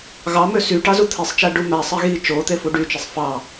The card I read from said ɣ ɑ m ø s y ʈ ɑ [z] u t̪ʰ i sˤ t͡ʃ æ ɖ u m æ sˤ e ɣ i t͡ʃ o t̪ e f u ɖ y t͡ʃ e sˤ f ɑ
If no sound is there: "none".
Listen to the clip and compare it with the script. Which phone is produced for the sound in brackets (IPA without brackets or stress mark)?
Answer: z